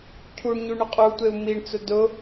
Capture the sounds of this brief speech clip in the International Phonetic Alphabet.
cʰ u ɳ ɲ u ɳ ʊ qʼ u tʷ e u̯ m i ɳ t͡s ʊ d ʊ

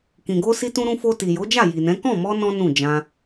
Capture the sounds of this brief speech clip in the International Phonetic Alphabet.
k ĩ˨ ɡ o˧ s i˧ t ũ˧ ɾ ũ˧ f o˧ t i˨ j o˨˦ d͡ʒ a˦˨ j i˨ n ɛ̃˨˦ k ɔ̃˦˨ m ɔ˧ n ɔ̃˦ n ũ˦˨ d͡ʒ ã˧

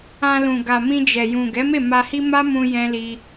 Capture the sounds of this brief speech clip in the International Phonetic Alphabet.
ã˧ l ũ˨ ɡ a˨ m ĩ˧ d͡ʒ ɛ˨ j ũ˨ ɡ ɛ˨˦ m e˦˨ m a˧ h i˦ m a˦ m ũ˧ j ɛ̃˧ l i˧

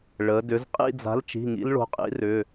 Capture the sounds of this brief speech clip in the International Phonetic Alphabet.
ɭ ə˩˧ d ʏ˩˧ z qʼ ḭ˥˧ d͡z a̤˨˥ l t͡ʃ i̤˩˧˩ ŋ ḭ˦˥ l ɭ o̤˨˥ qʼ ḭ˨˥ r ʏ˩˧˩

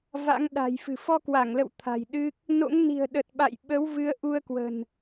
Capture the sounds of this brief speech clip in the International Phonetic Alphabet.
v a̰˧˥ ŋ ɗ a̤˨˩ j f ɨ̤˨˩ f ɔ˧ k w a˧˩ ŋ l ə̰˧˨ w t̪ʰ a̤˨˩ j ɗ ɨ˦˥ k̚ | n o̰˧˥ ŋ n i̤˨˩ ə̯ ɗ ə˨˩ t̚ ɓ a̰˧˨ j ɓ ə˨˦ w v ɨ˨˦ ə̯ ʔ u˧ ə̯ k w ə̤˨˩ n

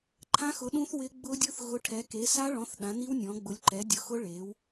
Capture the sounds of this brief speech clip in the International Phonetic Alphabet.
ǃʰ ã˦˥ x ʊ˨˥ ɗ ũ˦˥ θ w ɪ˦˥ ɡ͡b ʊ˦˥ dʲ ʊ˦˥ θ ɣ ʊ˨˥ ʈʰ ɛ˨˥ k e˨˥ s a˦˥ ɭ ɔ̃˨˥ θ ɗ ã˨˥ n i˦˥ w nʲ ɔ̃˨˥ ɡ͡b ʊ˨˥ lʲ ǃ ɛ˨˥ dʲ ʊ˨˥ x ʊ˦˥ ɭ e˨˥ w

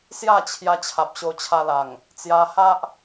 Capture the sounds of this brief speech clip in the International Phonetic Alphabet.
s j a˥˧ t͡ɕʰ j a˧ t͡ɕʰ a˨ p̚ ɕ o˧ t͡ɕʰ a˧ l a˨˩ ŋ | t͡s j a˧ h a˦ ʔ

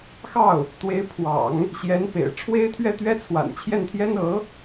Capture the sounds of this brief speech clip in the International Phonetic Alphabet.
x ɑ˥˩ ʊ̯ | t̪ w e˧˥ ɪ̯ pʰ w ɑ̰˨˩˦ ŋ | ɕ j ɛ˧˥ n p ḛ˨˩ ɪ̯ ʈ͡ʂʰ w e˥ ɪ̯ t̪ʰ ɥ ɛ˥˩ t̪ ɥ ɛ˥ t͡sʰ w a̰˨˩ n t͡ɕʰ j ɛ˥˩ n t̪ʰ j ɛ˥ n ɤ˧˥

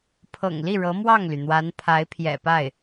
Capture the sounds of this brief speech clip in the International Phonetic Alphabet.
pʰ ɤ̰˨˩ ŋ l i˥˩ ɻ ɤ˧˥ m w ɑ˥˩ ŋ l y˩ n̪ w a˧˥ n pʰ a˧˥ ɪ̯ pʰ j ɛ̰˨˩ p a˥˩ ɪ̯

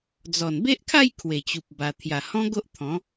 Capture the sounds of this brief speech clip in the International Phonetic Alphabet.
d͡z ɔ˨˩ n b e˦ ʔ kʰ a˥˧ j kʰ w e˨˩ t͡ɕ u˨ p̚ b a˧ t̪ʰ j a˨˩ h ɔ̃˦ ɡ o˦ ʔ t̪ʰ ɔ̃˨˦

